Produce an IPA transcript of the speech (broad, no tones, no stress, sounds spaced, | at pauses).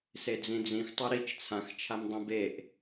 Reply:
s e d͡z ĩ d͡z ĩ x tˤ u ɾ i t͡ʃ t͡sʰ ã x t͡ʃʰ a m dˤ ĩ b e ʔ